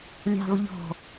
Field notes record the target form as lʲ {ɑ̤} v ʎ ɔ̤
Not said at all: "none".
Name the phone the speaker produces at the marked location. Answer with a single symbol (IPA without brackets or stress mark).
ɑ̤